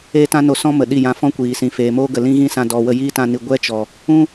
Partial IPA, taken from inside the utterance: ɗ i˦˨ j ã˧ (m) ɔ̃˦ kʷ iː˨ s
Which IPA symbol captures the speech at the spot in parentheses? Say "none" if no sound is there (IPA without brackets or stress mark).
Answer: f